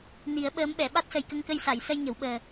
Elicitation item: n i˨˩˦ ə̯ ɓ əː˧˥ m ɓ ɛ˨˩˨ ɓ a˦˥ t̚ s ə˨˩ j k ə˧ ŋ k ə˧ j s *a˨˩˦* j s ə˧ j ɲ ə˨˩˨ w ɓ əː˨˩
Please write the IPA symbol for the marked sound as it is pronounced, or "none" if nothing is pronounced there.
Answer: a˨˩˨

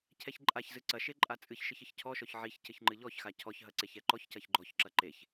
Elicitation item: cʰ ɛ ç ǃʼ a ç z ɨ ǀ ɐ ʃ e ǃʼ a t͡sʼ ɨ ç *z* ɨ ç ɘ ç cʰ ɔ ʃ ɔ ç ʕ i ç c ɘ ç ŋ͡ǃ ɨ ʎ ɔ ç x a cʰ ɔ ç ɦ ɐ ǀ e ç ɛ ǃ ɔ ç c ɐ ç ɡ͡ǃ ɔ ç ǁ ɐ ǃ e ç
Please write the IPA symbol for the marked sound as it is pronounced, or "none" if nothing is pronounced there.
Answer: ʃ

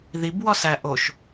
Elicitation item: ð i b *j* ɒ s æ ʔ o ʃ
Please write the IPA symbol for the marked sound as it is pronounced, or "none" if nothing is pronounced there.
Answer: w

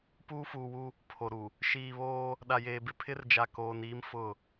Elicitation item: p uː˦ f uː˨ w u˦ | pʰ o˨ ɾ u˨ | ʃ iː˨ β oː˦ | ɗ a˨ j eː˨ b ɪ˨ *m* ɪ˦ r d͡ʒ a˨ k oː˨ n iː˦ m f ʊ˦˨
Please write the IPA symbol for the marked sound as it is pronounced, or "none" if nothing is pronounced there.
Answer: pʰ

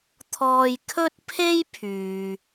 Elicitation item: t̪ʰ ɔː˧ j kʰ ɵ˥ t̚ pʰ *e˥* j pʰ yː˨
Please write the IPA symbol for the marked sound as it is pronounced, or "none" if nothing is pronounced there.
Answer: e˥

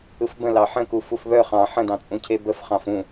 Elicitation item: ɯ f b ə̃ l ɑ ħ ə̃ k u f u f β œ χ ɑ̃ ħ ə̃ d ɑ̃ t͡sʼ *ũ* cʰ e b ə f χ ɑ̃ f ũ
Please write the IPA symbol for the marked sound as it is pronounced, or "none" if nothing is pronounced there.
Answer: ũ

